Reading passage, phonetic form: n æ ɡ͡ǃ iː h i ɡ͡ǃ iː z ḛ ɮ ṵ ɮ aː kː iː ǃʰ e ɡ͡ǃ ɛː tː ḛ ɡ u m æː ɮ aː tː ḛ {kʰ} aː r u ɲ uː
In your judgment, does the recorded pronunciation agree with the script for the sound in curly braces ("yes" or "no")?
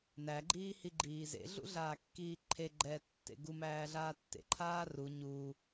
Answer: no